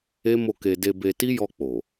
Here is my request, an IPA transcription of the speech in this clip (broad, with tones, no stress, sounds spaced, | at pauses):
e˦ m o˦˨ k e˧ d e˧ b e˧ t i˦ j ɔ˧ k͡p o˨